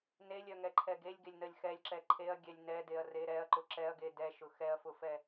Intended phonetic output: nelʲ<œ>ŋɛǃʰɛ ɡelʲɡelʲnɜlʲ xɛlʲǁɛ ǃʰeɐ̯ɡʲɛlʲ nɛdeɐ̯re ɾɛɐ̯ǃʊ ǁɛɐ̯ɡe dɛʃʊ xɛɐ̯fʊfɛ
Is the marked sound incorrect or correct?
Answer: correct